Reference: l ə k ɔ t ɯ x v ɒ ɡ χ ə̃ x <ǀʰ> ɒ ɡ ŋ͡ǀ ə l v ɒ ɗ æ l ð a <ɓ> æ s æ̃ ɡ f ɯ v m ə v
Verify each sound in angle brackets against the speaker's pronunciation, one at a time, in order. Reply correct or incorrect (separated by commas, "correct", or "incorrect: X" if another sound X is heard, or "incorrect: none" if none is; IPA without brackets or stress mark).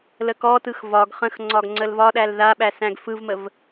incorrect: ŋ͡ǀ, correct